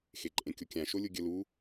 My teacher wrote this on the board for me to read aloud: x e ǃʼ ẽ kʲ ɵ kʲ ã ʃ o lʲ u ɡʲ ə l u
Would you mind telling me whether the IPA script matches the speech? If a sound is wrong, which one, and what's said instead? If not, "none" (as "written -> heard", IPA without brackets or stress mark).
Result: ɵ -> o